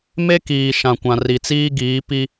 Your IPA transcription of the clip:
m e˦ k iː˨ ʃ ã˨ kʷ ã˨ r i˨ t͡s iː˦ ɡ iː˨˦ p i˦

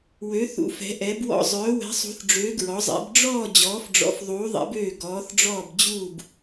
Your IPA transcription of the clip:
w ø˨˦ θ ṵ˨˦ f ɛ̤˨˦ ʔ ɛ˨˦ b w ɔ̰˦˨ zˤ œː˨˦ w ɛ̤˨˦ sˤ ṳ˨˦ θ ɖ͡ʐ øː˨˦ ɡ ɹ ɔ˨˦ zˤ ɛ̰˨˦ b ɖ͡ʐ ɔː˦˨ d͡ʑ ɔː˨˦ f ɖ͡ʐ ɔ̰˨˦ f ðˤ uː˨˦ ðˤ ɛ̰˨˦ b øː˦˨ ɡ ɔː˨˦ θ ɖ͡ʐ ɔː˦˨ b d͡ʑ uː˦˨ b

